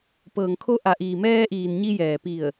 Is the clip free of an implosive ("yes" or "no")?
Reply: yes